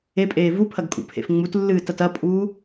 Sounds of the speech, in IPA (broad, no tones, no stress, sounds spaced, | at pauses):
e pʼ eː v u pʰ ɐ ɡ kʼ ṵ pʰ ḛ f ŋ͡m u t lː ɨː t ɐ t ɐ pʼ uː